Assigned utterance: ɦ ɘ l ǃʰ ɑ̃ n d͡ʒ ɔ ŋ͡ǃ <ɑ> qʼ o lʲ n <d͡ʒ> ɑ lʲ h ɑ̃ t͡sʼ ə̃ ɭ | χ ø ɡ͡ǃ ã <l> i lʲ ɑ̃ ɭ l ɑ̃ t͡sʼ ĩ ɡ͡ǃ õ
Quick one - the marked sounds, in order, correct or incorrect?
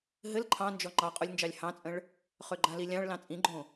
correct, correct, correct

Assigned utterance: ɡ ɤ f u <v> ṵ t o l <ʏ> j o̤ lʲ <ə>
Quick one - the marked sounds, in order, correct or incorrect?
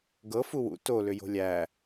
incorrect: w, correct, incorrect: æ

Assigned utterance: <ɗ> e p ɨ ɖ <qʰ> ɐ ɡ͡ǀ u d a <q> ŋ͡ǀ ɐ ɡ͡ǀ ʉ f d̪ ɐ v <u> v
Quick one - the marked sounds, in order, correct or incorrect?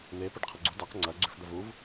incorrect: n̪, correct, correct, correct

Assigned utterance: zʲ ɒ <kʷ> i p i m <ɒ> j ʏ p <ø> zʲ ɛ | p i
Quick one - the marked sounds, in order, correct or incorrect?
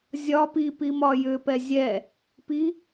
incorrect: p, correct, incorrect: ɛ

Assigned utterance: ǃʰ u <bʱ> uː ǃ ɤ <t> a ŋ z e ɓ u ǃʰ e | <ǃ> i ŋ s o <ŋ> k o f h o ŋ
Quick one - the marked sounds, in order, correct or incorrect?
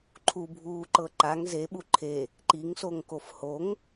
correct, incorrect: ǃ, correct, correct

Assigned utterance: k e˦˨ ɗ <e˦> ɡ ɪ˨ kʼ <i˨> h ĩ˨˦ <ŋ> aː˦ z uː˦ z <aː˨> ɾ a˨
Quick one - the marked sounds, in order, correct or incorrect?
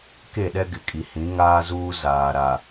incorrect: ɛ˦, correct, correct, correct

